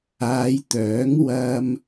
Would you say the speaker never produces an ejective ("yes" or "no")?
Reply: yes